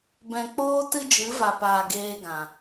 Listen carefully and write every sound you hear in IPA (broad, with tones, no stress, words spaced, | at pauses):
bɛ̃˨k͡poː˧ tɨ˦d͡ʒɨ˨˦va˨paː˨ ɡeː˧ɡã˨